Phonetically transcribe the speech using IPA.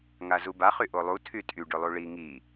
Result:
ŋ a z u b a χ y ʔ o lˠ u tʰ y tʼ y ɖ ʏ lˠ u ɭ i ŋ i

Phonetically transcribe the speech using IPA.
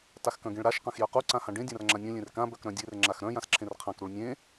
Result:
t a x k œ̃ ɡ ẽ ɭ ɾ a ʃ q ã x j œ q u ǀ ã h ã ɖ ẽ dʲ ã r ŋ͡ǁ ã nʲ œ̃ lʲ ẽ r k ã b œ k ɾ œ̃ dʲ e r ŋ͡ǁ a x ɾ œ̃ j ã s ǁʰ ẽ r qʰ ã k ɾ u ɭ nʲ ẽ

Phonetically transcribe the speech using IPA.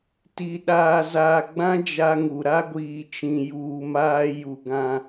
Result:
t i˨ ɗ aː˨ z aː˨ ɡ͡b ã˦ d͡ʒ a˦ ŋ u˨ ɾ a˦ ɡʷ iː˨ t͡ʃ ĩ˨ j uː˨ m aː˦ j u˨ ɡ ã˨

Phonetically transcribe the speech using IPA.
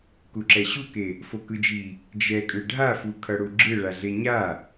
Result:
k u ǁ ɛ ɕ u k e | f o k ɯ d͡ʒ i | d͡ʒ ɛ kʼ ɯ ɖʱ a f u kʰ ʌ ɽ u ɡ͡ǁ ɯ ɭ a ɮ e ɲ a

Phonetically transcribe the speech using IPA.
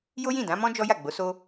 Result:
j o˦ j ĩ˦˨ d ã˨˦ m ɔ̃˦ d͡ʒ ɔ˦ j a˦˨ ɡ͡b o˨˦ s o˦

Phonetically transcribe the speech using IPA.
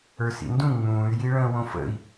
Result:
ə˞ s ḭ n d ũ ŋ͡m ũː y̯ j i ɭ ə̃ː w õ f ə̰ i̯

